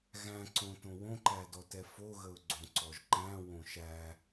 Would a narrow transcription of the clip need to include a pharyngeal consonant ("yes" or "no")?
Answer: no